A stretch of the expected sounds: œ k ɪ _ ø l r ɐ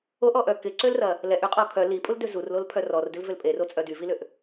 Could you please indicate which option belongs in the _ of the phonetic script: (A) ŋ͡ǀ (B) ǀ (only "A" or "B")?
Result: B